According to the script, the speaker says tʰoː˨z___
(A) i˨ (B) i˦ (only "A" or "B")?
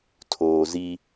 B